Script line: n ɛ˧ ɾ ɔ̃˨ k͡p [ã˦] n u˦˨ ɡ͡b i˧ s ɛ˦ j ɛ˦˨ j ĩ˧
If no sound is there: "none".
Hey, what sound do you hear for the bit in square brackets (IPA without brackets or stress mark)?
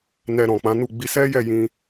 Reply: ã˨˦